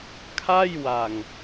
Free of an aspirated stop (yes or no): no